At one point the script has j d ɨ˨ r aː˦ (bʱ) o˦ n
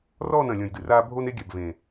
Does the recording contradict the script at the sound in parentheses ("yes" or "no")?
no